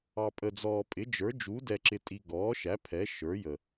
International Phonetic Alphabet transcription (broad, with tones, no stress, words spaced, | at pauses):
ɑ˨pʼə˨ d͡zɔː˨pʼɪ˩˥d͡ʒə˞˩˥ d͡ʒu˩˥dɛ˨ǁɪ˨tʼi˨ ɡɔː˩˥ʃæ˩˥ pʰɛ˩˥ ʃə˞˩˥jə˨